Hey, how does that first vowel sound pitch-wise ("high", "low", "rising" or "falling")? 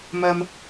high